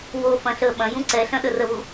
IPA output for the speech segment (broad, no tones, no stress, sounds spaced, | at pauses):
w o f ɐ̃ ɬ ə ɓ ɐ̃ j ũ ǀ ɛ ɬ ɐ̃ ɗ ə r ə β u